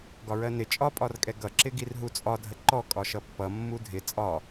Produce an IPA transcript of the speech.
ɡ ɒ ɹ ɜ n ɪ t͡ʃʼ ɒ pʼ ɒ r kʼ ɛ ɡ ʌ ǁ ɪ ɡ i r ɦ u t͡sʼ ɒ dʱ ə ǃ ɔ kʼ ɒ ʃ ʌ pː ʌ mː u dʱ ɪ t͡sʼ ɒ

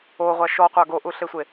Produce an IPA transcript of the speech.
o ʁʷ a ʃ ɔ qʷ a ɡ o ʔ u ɬ e sʷ e

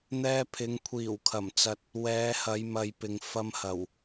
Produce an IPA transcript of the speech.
n̪ ɛː˧ pʰ ɪ˨˧ ŋ kʷʰ iː˨˩ w kʰ ɐ˨˩ m t͡s ɐ˨ t̚ | w ɛː˨˧ h ɐ˨˧ j m ɐ˨ j p ɪ˨ ŋ f ɐ˧ m h ɐ˨˩ w

